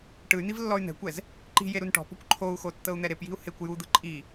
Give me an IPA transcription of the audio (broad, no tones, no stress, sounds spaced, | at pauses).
ʈ ɯ y̯ n̪ i v lː ɔ y̯ n̪ ɛ̤ kʷ ɛ z | ǃ i̤ j e ɾ u n ʈ ɔ̤ p ɔ̤ kʷ ǃʰ o u̯ x o tː ɤ u̯ n̪ ɛ ɾ e p j i̤ u̯ h e kʷ j u d̪ ɯ ǃʼ i